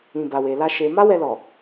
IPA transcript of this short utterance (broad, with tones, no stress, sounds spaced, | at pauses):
ĩ˨ b a˨ w e˨ l a˧ ʃ e˧ m a˦ w ɛ˧ l ɔ˨